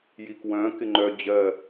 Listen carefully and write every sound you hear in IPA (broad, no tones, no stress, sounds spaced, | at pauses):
j i k w œ̃ k ɪ ŋ͡ǃ œ d͡ʑ ɜ